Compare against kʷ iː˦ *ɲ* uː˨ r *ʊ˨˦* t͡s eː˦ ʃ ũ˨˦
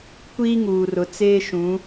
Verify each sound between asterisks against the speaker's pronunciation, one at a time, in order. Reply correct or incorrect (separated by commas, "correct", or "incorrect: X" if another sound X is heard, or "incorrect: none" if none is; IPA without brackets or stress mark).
incorrect: ŋ, correct